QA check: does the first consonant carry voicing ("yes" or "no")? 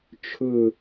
no